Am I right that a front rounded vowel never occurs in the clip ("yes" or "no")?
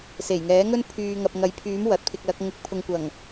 no